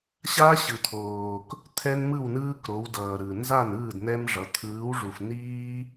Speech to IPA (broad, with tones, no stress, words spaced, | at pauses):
ɕa˦ɕɯ˨ t̪ʰoː˨k | t̪ʰɛ˦nmɯ˥˨wnɯː˦kɾo˨˦w dʌː˨ɾɯ˨ nza˥˨nɯː˥˨dnɛ˦mʐʌ˨˦ t̪ʰɯː˨˦wʐu˨fniː˦